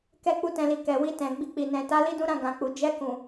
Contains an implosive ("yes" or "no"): no